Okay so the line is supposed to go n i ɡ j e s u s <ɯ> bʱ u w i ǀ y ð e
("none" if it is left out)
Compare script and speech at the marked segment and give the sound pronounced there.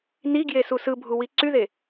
ɯ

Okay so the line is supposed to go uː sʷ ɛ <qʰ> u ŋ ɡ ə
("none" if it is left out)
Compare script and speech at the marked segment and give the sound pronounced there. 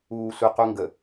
q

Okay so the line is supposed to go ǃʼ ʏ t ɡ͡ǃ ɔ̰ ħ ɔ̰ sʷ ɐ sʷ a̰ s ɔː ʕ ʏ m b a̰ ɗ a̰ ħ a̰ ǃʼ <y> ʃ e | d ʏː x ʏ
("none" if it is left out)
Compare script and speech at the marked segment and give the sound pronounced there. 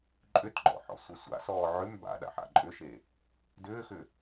ʏ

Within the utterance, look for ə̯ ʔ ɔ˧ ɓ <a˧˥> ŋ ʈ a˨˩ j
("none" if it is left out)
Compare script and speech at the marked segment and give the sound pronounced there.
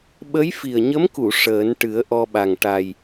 a˨˩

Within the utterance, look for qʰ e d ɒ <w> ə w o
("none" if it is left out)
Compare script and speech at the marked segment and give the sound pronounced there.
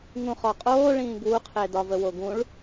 v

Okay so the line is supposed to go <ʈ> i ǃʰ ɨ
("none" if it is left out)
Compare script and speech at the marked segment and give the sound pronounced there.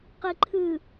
q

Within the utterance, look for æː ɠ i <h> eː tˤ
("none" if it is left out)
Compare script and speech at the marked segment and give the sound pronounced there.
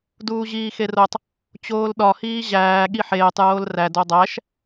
ħ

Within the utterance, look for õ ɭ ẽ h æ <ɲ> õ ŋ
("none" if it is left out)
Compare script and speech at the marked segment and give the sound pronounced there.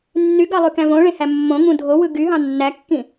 mː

